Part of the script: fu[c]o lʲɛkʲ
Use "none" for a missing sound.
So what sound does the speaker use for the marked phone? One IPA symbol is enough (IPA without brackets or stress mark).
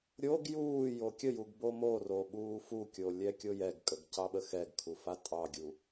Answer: kʲ